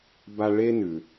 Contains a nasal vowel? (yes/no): no